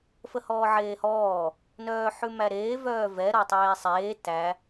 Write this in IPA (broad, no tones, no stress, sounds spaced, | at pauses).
f ə h ɔː ʕ eː h ɔː | n œː ħ ʉ m æ ɾ eː v œː v ɛ ɾ ɔ tˤ eː sˤ eː t æ